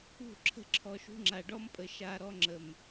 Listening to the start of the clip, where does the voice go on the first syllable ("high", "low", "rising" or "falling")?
falling